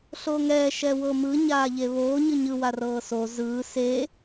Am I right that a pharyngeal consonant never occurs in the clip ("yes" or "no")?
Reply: yes